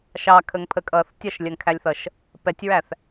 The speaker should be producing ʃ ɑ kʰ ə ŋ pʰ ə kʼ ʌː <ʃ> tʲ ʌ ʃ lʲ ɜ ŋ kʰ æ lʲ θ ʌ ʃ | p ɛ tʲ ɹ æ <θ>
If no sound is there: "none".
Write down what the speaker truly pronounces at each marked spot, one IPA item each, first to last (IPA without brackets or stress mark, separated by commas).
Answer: θ, θ